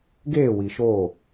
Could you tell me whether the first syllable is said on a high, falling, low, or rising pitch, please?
falling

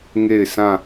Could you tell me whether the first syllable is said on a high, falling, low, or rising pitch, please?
falling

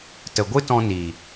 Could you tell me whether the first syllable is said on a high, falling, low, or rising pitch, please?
low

